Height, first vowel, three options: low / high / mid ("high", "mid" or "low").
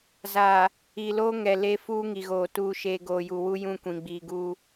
low